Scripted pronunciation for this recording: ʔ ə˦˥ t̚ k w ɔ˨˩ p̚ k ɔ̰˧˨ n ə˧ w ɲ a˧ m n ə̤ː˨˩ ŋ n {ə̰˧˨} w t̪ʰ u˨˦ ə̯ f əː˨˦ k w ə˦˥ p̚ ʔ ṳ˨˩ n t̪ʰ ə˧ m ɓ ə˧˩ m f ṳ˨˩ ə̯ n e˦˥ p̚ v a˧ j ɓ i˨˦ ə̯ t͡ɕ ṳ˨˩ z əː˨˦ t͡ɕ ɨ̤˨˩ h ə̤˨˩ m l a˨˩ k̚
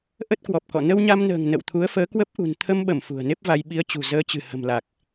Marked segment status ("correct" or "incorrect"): correct